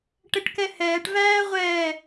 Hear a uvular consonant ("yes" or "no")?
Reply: yes